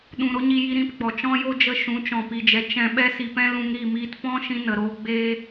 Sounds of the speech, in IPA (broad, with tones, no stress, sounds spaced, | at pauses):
ɗ ũ˧ ɾ o˦ ɲ i˧ j i˧ ɾ ĩ˧ p ɡ͡b ɔ˨ t͡ʃ ɔ̃˦ j o˦ d͡ʒ ə˧ ʃ ũ˨˦ t͡ʃ ɔ̃˨ p i˨ d͡ʒ ɛ˨ t͡ʃ ɛ̃˧ ɓ ɛ˦ s i˧ p ɛ̃˦ l ũ˧ ŋ ɾ i˦˨ m iː˧ t p ɔ̃˦ ʃ ĩ˧ n ə˨ ɾ oː˧ ɡ͡b eː˦